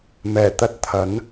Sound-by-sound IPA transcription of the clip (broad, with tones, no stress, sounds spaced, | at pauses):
m ɛː˨˩ t̪ ɐ˥ t̚ t̪ʰ ɐ˨˥ n